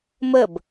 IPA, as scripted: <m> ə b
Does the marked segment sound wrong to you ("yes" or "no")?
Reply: no